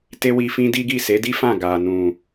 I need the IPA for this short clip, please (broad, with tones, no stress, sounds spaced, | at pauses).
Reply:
t e˦ w i˧ f ĩ˦ d i˦ ɡ i˦˨ s e˨˦ d i˦ f ã˦˨ ɡ a˨ n ũ˨